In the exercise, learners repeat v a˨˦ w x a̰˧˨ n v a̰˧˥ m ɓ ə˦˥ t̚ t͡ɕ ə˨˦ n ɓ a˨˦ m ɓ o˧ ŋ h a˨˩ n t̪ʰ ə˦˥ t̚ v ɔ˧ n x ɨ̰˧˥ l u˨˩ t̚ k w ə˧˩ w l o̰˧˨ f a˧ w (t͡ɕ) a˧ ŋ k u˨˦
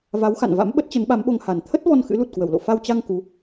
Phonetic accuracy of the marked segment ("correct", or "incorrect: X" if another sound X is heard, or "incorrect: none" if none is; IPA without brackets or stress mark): correct